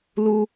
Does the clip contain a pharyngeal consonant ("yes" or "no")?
no